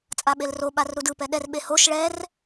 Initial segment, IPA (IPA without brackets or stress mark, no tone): t͡sʼ